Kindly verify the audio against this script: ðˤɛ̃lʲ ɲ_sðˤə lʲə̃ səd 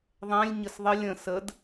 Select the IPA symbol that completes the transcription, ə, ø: ə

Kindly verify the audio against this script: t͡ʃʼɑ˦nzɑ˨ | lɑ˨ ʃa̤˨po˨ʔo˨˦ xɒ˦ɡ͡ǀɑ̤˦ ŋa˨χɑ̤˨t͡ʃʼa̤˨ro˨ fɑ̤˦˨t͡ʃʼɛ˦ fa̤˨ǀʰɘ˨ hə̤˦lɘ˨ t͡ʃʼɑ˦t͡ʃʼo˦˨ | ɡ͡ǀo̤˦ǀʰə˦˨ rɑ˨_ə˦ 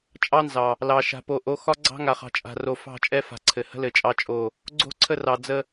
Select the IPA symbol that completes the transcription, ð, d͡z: d͡z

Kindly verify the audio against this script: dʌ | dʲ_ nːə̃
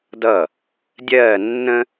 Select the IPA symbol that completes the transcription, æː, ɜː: ɜː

